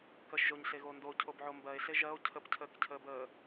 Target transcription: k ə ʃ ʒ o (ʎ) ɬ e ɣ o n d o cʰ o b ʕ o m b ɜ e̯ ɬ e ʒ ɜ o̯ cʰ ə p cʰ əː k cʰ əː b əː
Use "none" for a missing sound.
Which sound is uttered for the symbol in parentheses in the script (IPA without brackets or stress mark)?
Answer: ɲ